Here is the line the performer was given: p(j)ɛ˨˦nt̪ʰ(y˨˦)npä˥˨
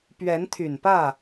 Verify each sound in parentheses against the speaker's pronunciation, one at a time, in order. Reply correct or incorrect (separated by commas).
incorrect, incorrect